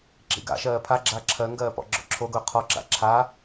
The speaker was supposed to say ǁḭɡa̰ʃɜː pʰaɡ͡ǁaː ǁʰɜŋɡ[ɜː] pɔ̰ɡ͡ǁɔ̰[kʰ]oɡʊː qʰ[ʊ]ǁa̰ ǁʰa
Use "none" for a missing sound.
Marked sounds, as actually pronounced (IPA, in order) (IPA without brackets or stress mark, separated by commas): ɜː, ǁʰ, ɔ